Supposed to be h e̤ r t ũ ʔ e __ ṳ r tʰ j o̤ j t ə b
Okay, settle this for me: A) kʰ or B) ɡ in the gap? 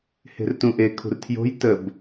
A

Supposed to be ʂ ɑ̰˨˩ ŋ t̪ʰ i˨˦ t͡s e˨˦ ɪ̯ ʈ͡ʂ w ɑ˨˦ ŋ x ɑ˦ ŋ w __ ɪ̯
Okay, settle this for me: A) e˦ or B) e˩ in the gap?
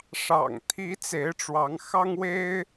A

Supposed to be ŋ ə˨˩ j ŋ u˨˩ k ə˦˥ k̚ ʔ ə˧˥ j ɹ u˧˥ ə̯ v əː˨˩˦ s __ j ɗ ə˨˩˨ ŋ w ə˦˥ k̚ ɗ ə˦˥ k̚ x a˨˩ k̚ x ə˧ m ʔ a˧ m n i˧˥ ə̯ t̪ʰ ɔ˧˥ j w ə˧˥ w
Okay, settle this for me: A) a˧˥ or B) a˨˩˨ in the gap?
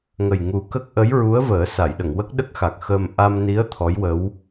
B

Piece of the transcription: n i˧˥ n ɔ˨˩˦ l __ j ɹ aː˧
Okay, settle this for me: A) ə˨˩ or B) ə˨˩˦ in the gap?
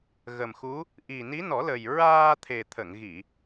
A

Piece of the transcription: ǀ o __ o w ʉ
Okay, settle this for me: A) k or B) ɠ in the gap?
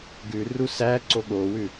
B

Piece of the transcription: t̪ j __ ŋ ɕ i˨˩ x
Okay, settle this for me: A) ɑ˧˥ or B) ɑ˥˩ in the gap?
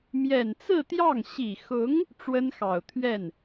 B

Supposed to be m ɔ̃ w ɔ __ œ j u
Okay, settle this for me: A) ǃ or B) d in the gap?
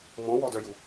B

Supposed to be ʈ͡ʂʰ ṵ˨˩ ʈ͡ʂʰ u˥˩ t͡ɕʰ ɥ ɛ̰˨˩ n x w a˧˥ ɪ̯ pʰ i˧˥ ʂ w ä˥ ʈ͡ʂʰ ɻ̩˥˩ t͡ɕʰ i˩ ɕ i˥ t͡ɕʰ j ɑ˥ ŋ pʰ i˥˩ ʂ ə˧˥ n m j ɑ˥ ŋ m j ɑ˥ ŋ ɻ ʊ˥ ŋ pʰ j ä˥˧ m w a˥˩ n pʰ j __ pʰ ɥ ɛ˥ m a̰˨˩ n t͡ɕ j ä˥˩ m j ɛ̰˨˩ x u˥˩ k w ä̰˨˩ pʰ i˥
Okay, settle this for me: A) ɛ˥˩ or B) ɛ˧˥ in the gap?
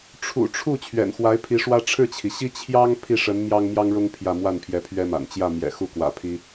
B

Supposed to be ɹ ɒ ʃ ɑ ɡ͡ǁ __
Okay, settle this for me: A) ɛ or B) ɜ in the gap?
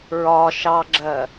B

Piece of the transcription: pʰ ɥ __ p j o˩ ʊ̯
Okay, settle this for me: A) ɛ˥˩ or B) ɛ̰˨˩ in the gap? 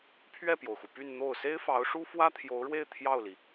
A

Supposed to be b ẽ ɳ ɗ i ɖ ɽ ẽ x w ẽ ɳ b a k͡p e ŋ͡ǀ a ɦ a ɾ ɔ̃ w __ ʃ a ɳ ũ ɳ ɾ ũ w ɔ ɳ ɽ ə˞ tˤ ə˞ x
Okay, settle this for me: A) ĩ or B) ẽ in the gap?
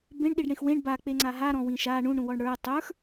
A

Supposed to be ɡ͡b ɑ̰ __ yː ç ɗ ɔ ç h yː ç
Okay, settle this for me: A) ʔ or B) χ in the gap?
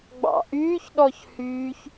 A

